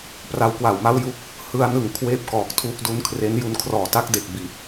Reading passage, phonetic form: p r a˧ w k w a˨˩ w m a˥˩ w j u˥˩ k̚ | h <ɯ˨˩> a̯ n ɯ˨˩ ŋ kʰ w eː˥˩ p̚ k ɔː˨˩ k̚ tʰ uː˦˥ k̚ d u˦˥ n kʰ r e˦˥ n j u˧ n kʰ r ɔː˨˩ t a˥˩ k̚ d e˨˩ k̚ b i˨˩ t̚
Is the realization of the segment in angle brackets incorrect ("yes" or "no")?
yes